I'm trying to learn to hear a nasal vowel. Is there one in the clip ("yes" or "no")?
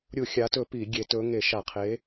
no